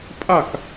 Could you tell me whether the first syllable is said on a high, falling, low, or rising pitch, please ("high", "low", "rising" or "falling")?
falling